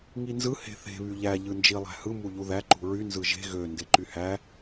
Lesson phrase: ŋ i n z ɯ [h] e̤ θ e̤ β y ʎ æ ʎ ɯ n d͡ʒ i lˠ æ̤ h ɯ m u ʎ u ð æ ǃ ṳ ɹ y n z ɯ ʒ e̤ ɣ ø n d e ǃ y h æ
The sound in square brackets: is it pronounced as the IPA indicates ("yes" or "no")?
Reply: yes